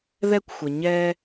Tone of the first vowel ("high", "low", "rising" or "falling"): high